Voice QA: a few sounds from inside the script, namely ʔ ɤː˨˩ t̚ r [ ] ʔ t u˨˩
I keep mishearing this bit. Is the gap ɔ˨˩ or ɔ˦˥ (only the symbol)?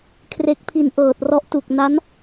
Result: ɔ˦˥